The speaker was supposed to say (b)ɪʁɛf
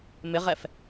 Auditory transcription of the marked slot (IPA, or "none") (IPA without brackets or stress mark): m